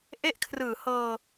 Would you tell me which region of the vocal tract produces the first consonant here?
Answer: throat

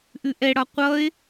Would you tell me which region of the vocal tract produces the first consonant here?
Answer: throat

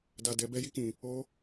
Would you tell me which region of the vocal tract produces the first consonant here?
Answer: tongue tip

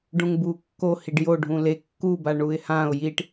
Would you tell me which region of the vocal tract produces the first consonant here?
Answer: retroflex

